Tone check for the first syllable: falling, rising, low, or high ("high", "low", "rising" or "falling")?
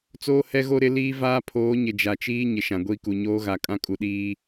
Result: high